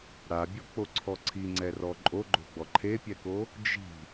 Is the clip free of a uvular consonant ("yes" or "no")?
yes